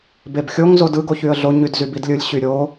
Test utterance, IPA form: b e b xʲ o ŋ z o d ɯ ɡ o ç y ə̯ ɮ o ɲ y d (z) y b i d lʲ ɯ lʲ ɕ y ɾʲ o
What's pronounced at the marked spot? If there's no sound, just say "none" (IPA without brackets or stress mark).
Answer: z